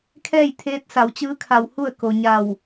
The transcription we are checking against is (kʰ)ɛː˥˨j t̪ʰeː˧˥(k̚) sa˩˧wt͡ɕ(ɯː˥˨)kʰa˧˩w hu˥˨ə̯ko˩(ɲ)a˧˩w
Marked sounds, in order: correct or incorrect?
correct, incorrect, incorrect, correct

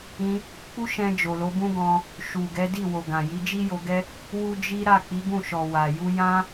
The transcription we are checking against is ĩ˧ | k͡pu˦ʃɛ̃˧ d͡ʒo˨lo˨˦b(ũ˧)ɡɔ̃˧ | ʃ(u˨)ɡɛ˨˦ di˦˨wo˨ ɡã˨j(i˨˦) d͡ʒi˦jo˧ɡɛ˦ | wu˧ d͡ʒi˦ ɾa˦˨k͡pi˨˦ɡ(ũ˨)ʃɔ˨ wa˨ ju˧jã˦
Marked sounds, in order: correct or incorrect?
incorrect, correct, correct, incorrect

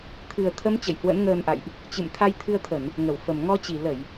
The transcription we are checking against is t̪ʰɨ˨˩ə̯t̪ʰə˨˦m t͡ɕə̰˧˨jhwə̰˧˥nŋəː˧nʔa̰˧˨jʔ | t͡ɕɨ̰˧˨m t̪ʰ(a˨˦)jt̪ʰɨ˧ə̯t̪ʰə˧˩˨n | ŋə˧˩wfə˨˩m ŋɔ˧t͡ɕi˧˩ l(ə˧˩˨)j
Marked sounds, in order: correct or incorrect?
incorrect, correct

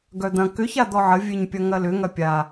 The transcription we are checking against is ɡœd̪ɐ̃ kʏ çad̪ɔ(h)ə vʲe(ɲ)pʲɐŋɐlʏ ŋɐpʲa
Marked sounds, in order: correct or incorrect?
incorrect, correct

